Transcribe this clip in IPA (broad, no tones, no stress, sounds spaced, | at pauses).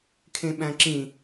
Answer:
kʰ ẽ ɓ æ̃ ǁ ĩ